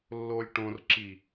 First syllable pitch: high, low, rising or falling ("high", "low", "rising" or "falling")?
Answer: low